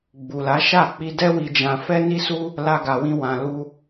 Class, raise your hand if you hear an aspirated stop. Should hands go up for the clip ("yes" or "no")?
no